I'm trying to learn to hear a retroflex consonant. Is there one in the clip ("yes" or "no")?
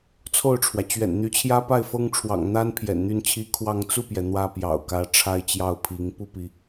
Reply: yes